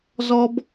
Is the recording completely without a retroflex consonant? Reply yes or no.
yes